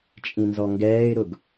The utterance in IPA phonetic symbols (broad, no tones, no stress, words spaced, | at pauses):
t͡ʃʼĩnzɔŋɡɛːɪ̯ɾʊɡ